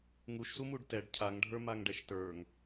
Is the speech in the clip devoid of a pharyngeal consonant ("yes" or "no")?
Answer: yes